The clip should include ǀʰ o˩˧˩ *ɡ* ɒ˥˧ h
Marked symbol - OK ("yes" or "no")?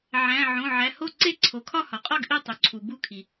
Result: no